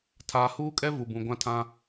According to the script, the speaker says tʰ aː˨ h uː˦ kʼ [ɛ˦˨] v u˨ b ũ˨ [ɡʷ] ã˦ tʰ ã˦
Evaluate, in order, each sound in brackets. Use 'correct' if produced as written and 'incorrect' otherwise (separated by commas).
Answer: incorrect, correct